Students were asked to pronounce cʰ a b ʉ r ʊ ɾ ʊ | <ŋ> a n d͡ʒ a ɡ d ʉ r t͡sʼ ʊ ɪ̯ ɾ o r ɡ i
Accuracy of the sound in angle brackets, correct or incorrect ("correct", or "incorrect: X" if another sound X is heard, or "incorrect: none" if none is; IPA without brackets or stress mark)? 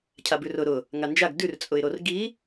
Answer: correct